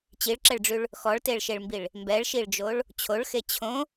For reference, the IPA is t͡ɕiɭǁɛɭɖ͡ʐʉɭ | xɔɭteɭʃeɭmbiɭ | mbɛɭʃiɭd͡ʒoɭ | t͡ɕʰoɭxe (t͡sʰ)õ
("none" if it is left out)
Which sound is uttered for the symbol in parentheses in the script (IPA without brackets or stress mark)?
t͡ɕʰ